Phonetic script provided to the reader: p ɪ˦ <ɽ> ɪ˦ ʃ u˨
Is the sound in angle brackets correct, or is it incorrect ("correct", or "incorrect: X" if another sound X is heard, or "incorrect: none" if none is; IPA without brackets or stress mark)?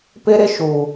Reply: incorrect: ɾ